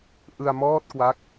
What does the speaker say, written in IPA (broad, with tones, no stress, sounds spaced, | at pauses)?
ʔ ɯ˧ a̯ m ɔː˥˩ t̚ k w a˦˥ k̚